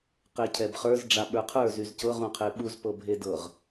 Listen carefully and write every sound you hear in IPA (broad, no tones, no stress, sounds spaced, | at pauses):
q e cʰ ɛ b χ ə˞ z ɖ͡ʐ a ɓ ə˞ qʰ ə˞ z y z c ɤ ʁ ũ qʰ e ɓ u z p ɤ bʱ e d ɤ ʁ